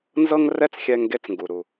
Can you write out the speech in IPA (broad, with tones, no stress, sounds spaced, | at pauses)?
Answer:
n z ɤ˥ ŋ r ɛ˥ t͡s xʲ ɛ˧ ŋ ɡ e˧ t͡s ŋ ɡ u˩ ɾ u˩